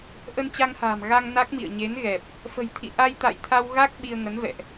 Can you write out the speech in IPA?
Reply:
ʔ ə˧ n t͡ɕ a˧ ŋ h a̤ː˨˩ m ɣ a˧ ŋ n a˦˥ k̚ m ḭ˧˨ ə̯ ɲ e˨˦ n ɣ ɛ˨˩ p̚ | f ə̤˨˩ j t̪ʰ ḭ˧˨ ʔ a˧ j t̪ a̰˧˨ j t̪ʰ a˧ w ɣ a˦˥ k̚ ɓ i˧ ə̯ ŋ ə˨˦ n v ɛ̰˧˨ ʔ

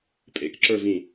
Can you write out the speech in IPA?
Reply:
pʼ ḛ k ǁ ə˞ v ĩ

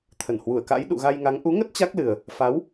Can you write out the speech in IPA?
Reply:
t̪ʰ ə˧˩ n h w u˧˩ ə̯ k a̰˧˥ j ɗ ṵ˧˨ ɣ a˧ j ŋ a˨˦ ŋ ʔ u˨˦ ŋ ə˦˥ t̚ t͡ɕ a˦˥ k̚ l ɨ˨˩ ə̯ | f a˨˦ w

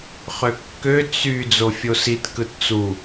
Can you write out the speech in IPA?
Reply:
χ ø kː ø t͡s y d͡z o fʲ o s i t k ɯ t t͡s u

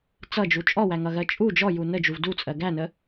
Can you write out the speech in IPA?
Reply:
t͡s ʌ d͡ʒ u t͡ʃʼ ɔ w æ ŋ ʌ ɣ ɜ t͡ʃʼ u d͡ʒ ɔ j u n ə d͡ʒ u v d u t͡sʼ ɜ ɡ æ n ə

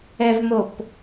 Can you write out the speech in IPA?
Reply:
ɛ v m o p

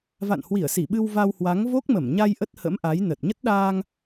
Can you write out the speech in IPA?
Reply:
v a̰˧˨ n h w i˧˩ ə̯ s i˧˩ ɓ ɨ˧ w v a˧ w h w a˨˦ ŋ v o˦˥ k̚ m ə˧˩ m ɲ a˧ j ʔ ə˦˥ t̚ h ə̰˧˥ m ʔ a˨˦ j n ə˨˩ t̚ ɲ ə˦˥ t̚ ɗ aː˧ ŋ

